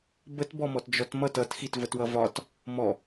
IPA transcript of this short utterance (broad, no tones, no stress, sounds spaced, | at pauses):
b ə t b ɔ m ɔ t d͡ʒ ɔ t m ʌ t ʌ t x i t v ə t w ʌ v ɒ t | m ɔ